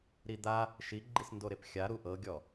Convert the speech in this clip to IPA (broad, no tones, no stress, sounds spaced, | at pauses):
ɾ i d̪ a | ʃ i ɡ͡ǃ i s n d o ɾ e p xʲ a ɾ u ʔ ɤ ɡʲ ɔ